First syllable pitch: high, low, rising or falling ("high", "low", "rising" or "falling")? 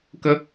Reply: high